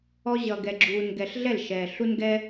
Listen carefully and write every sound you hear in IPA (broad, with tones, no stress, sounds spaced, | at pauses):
ɔ˧ ʑ ʌ˨ ɡ ɛ˨ ɡ͡ǁ uː˨ n ɡ ɛ˨ ɬ ɮ ɛ˦˨ l ʃ ɛː˨ ɬ u˦ n ɡ ɛ˦